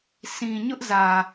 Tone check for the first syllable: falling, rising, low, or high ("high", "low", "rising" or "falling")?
low